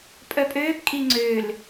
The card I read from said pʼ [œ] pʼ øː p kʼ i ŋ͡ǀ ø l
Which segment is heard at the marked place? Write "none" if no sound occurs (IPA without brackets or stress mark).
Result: œ